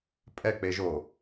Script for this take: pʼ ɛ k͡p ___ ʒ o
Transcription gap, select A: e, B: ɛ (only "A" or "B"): A